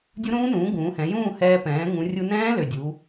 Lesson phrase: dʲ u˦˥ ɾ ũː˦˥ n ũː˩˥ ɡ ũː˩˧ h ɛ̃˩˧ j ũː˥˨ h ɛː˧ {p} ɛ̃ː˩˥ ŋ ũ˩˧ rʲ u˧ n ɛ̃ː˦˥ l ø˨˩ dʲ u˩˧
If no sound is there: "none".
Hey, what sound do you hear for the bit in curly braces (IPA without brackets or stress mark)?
p